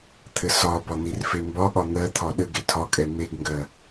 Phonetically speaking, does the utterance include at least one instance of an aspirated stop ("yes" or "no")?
yes